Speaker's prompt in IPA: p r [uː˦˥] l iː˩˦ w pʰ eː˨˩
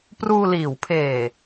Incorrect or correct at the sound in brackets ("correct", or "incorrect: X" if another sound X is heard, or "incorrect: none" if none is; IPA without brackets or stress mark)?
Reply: incorrect: uː˧